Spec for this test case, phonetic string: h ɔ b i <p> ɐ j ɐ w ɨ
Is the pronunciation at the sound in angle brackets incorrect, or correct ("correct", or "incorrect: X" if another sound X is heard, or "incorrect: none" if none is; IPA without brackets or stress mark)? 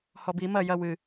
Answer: incorrect: m